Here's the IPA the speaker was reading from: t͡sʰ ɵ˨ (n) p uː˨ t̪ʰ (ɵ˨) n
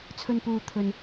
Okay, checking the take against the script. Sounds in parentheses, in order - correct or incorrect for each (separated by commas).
correct, correct